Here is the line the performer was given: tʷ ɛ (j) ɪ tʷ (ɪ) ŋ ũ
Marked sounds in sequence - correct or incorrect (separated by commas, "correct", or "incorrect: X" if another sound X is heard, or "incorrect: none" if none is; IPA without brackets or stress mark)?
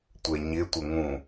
incorrect: ɲ, correct